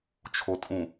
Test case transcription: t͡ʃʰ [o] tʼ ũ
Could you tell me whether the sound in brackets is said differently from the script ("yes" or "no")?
no